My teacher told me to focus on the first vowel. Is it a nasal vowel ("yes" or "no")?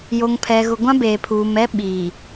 no